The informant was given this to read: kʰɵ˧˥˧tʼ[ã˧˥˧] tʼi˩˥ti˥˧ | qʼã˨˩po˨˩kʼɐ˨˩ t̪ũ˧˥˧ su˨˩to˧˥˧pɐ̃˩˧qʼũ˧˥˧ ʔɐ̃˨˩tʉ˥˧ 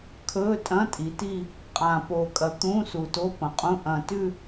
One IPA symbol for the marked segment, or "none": ɐ̃˧˥˧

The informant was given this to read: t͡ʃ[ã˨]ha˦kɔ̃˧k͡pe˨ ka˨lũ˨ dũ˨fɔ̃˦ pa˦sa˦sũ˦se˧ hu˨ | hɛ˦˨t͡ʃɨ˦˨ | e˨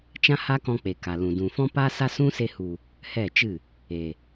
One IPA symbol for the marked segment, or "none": ã˦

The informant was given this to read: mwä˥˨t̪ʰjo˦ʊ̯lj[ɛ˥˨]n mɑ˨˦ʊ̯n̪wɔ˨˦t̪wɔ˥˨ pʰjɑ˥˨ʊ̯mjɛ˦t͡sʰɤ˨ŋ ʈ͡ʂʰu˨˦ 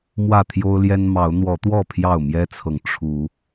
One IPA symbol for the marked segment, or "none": ɛ˦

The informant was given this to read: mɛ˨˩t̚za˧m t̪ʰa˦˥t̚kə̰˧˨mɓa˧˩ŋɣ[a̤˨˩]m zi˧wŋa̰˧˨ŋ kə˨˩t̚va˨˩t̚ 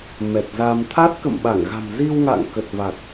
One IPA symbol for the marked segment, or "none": a̤˨˩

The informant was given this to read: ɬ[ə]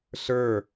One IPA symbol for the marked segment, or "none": ə˞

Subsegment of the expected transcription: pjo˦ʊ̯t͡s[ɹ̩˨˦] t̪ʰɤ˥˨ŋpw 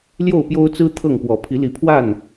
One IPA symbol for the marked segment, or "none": ɹ̩˦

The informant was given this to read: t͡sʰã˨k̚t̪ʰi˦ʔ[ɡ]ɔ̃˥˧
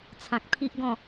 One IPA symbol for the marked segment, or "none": ɡ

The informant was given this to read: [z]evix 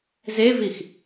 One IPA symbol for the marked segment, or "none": z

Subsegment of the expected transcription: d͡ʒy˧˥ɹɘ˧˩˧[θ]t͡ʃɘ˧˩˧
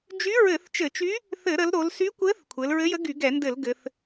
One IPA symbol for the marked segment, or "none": θ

